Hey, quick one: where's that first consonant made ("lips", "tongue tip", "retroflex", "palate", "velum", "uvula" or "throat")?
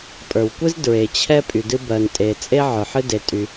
lips